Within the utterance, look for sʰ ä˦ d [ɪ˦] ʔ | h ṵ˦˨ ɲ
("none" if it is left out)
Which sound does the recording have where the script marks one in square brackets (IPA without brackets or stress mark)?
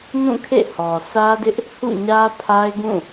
ɪ˦